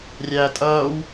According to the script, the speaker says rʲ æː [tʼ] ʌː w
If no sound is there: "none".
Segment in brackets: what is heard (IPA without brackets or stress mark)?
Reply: tʼ